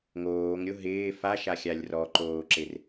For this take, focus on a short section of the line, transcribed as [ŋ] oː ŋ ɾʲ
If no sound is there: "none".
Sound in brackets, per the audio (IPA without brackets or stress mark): ŋ